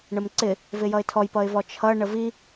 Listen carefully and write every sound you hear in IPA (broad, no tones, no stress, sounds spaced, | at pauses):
ɳ ə m ǀ ɪ | v ɪ j ʌ ɪ̯ tʰ ɔ j p ʌ ɪ̯ v ɔ t͡ʃʰ ʌ ɳ ə v i